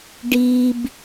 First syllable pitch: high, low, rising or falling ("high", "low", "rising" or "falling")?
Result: low